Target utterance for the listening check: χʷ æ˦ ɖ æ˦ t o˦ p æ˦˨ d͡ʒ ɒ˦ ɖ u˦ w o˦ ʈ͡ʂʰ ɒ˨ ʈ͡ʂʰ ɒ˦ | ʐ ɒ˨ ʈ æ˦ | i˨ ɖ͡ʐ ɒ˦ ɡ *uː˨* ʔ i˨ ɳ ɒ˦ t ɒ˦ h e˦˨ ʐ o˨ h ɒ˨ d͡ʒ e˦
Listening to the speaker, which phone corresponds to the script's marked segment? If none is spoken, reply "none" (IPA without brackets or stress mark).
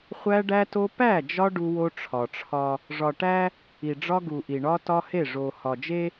u˨